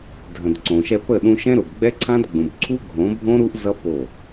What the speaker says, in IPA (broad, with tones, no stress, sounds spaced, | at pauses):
dʱ ə̃˨ d ǀ õ˨ ʃ ɛ˧ p ə˦˨ ɗ ũ˧ ʃ ɛ̃˦ ɾ ʊ˨ b ɡ͡b ɛ˦ ǀʰ ã˦ d ɡ͡b ũ˨ b ǀʰ u˦ ɡʱ õ˨˦ bʱ õ˦ ɾ u˦ ʔ z ʌ˦ p o˦˨